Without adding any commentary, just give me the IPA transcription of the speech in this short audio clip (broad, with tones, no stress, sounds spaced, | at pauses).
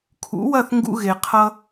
kʰ ṵ˩˥ w ɐ˥˩ θ ŋ ɡ ṵ˧ ɣ e˩ qʰ ʌ˧